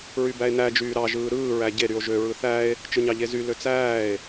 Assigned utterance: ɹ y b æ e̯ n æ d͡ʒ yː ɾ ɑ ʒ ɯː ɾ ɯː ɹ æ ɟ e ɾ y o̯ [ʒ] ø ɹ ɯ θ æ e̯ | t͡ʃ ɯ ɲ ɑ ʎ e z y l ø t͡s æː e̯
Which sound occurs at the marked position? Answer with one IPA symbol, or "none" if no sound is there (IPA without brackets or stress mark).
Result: ʒ